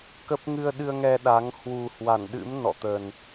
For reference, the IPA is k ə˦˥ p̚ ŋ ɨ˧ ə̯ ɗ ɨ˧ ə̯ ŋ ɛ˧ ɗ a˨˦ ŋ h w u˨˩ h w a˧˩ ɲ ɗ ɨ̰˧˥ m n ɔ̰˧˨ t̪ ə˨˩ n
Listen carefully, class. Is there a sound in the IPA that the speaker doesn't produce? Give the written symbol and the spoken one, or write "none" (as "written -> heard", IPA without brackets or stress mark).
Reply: ɲ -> n